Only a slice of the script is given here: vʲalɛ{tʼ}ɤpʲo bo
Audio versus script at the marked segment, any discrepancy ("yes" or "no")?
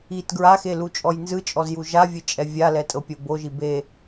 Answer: no